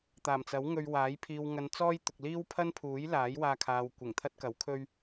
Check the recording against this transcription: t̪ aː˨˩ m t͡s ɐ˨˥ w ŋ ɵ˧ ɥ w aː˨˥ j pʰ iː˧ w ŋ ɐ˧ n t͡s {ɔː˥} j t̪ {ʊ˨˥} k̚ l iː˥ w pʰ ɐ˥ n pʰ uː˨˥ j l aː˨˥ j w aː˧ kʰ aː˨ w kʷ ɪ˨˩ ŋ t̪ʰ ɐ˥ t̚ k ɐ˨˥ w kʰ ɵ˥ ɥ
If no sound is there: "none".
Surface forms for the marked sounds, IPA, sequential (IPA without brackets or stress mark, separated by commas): ɔː˥, ʊ˨